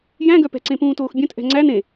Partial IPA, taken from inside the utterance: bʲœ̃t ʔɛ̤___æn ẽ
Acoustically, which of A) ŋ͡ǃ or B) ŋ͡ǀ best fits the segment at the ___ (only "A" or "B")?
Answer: B